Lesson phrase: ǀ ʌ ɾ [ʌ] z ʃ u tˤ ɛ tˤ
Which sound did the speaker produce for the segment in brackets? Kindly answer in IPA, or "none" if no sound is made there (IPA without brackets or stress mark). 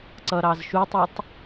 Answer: ɑ